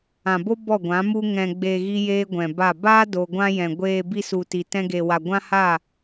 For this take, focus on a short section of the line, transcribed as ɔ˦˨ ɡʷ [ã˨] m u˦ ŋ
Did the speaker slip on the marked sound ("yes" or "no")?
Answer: yes